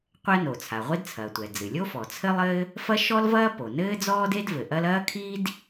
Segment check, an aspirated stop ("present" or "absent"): present